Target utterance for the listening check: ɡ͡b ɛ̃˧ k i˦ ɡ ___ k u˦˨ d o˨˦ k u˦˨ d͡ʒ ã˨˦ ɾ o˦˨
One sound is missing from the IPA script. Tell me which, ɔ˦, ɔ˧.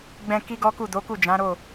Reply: ɔ˦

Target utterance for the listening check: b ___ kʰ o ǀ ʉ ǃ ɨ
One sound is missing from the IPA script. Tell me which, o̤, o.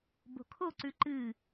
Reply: o̤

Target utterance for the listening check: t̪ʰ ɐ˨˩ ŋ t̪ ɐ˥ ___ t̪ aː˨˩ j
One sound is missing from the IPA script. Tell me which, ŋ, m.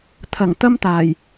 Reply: m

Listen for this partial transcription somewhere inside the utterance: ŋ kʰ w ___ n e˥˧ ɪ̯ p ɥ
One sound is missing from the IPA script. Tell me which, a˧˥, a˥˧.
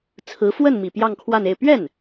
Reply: a˥˧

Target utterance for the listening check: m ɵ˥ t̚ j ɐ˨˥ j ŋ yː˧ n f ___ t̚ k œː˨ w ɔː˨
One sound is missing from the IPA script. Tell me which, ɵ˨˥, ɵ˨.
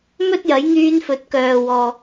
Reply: ɵ˨˥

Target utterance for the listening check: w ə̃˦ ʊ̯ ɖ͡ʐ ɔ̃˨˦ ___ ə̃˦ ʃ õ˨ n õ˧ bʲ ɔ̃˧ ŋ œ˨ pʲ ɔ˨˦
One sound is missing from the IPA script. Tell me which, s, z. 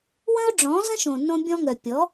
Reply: z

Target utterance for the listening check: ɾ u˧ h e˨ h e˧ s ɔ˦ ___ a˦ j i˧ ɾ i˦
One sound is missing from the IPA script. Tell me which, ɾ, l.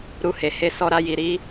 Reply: ɾ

